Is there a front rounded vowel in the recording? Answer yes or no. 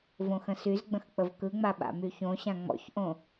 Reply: yes